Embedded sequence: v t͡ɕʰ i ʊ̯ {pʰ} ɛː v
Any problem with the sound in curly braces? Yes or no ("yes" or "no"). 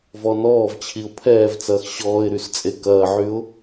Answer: no